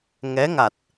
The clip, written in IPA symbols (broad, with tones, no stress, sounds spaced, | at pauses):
ŋ ɛ˧˥ ŋ a˨˩ t̚